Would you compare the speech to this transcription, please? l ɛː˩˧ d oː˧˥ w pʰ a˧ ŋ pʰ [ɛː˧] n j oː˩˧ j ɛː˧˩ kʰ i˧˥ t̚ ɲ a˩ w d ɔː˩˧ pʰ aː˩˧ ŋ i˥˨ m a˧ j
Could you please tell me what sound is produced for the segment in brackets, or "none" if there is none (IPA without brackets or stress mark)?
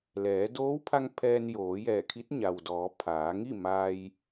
ɛː˧